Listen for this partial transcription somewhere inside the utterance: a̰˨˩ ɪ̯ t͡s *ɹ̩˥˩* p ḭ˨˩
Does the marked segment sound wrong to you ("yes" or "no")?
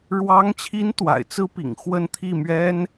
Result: yes